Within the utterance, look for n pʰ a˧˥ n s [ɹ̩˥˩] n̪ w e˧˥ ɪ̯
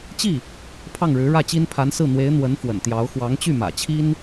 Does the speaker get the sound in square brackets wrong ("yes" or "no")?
no